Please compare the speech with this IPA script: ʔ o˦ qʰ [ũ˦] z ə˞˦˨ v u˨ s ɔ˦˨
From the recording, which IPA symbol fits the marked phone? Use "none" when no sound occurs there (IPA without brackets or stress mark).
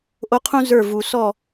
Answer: ũ˦